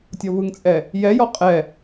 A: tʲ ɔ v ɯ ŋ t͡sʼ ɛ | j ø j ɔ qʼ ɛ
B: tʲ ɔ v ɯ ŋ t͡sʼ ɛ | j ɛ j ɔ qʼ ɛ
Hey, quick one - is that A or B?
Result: B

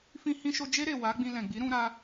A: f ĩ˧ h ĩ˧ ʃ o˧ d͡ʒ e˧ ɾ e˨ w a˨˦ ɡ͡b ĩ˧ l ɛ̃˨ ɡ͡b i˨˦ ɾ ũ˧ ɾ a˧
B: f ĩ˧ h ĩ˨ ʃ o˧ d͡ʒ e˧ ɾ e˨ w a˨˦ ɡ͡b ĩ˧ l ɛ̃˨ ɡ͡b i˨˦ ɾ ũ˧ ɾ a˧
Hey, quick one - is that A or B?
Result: A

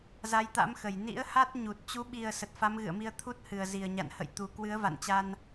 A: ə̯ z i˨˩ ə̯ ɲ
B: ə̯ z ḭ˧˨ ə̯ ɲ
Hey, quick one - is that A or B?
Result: A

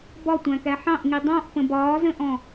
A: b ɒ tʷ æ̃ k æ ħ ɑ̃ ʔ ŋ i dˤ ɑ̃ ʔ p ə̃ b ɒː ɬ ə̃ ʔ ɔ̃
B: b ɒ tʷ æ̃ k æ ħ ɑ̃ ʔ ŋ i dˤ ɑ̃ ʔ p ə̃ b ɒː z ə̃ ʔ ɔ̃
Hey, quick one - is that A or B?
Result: B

